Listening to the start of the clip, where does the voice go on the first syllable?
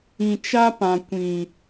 low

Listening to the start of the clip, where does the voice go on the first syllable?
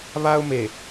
high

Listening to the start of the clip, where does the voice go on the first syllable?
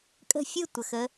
falling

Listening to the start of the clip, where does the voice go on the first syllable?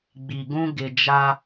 low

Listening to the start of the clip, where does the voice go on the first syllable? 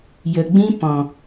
low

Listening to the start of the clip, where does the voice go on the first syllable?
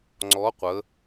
rising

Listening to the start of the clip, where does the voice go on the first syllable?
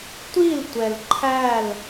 falling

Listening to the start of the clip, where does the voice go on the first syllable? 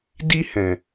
high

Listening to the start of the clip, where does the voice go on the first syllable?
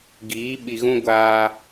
rising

